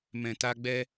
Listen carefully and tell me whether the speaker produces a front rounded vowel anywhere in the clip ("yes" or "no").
no